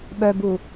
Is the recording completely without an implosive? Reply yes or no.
no